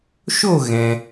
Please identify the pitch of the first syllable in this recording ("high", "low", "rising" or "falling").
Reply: falling